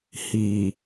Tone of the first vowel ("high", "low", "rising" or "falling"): low